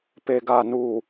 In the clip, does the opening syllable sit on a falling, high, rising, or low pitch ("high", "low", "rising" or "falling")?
low